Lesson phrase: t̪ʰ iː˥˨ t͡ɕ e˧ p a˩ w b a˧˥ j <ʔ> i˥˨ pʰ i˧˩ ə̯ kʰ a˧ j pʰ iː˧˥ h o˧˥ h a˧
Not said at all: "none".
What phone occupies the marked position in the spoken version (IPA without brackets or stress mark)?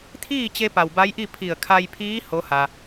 ʔ